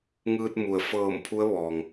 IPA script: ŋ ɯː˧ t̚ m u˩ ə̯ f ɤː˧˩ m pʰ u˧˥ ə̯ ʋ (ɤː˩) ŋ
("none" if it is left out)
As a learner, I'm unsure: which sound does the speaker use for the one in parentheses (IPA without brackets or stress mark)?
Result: ɔː˩